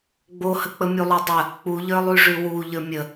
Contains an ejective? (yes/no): no